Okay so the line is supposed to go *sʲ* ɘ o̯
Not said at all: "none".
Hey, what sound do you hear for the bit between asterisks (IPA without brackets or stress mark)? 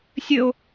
sʲ